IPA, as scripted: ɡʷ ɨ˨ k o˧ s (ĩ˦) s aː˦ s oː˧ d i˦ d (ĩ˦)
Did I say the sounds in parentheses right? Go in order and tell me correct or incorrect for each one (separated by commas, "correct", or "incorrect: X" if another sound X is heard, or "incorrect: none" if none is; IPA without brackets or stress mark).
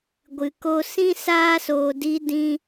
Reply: correct, correct